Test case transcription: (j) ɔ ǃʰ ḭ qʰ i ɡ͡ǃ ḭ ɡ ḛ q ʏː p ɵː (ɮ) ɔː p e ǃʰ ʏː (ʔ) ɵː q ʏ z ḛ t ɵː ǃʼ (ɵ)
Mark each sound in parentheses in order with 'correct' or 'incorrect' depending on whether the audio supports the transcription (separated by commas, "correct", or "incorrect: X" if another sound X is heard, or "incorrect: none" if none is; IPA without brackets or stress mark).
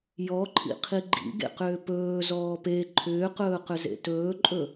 correct, incorrect: z, incorrect: q, correct